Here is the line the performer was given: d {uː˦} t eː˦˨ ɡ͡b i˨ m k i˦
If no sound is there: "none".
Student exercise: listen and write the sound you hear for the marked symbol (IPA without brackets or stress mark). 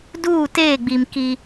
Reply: uː˦˨